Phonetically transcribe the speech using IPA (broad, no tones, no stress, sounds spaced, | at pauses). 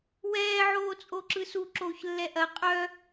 w ɛː ʕ oː t͡sʼ o ǁ ɯ s u ǁ oː ç lː ɛ ʔ ɐ qʼ œ